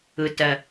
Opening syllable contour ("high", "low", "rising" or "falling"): low